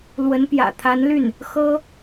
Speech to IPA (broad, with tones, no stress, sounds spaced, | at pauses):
l w ə˧˥ n p j ä̰˨˩ t̪ʰ a˧˥ n l y˥˩ n | x ɤ˥